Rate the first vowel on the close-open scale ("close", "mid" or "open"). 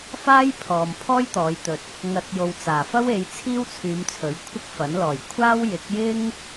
open